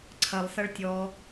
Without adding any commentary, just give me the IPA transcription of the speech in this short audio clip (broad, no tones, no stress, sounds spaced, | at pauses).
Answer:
ǀʰ ɐ lˠ s ɐ ɭ tʲ ɔ